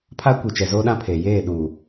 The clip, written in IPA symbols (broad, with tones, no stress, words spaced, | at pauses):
pʰa˦kʷi˨ t͡ʃɛ˨zoː˦ɗã˦pʰeː˨ jeː˦˨ɗuː˨